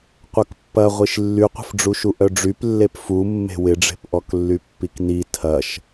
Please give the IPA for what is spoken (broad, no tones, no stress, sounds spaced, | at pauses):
qʷ œ k pː ɐ ʁʷ i ʃ lː y qʷ ə̤ f ɖ͡ʐ u ʃ u ʔ œ ɖ͡ʐ y p lː e p f u mː e̤ w ɪ ɖ͡ʐ e̤ p ʔ ɔ k lː y pː i k n i tʰ ɐ ʃ